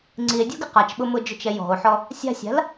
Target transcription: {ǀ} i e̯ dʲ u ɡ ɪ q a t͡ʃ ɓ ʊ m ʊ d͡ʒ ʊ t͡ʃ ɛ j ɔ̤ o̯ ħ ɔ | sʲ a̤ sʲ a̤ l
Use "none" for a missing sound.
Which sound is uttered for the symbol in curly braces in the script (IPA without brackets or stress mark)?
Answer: ŋ͡ǀ